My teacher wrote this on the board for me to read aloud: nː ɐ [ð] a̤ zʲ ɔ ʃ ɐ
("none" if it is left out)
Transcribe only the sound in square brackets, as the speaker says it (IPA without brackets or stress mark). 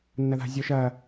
ð